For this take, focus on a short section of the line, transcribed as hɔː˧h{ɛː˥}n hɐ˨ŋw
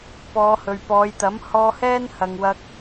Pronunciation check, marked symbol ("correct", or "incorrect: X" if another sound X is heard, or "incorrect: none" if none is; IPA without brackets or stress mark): correct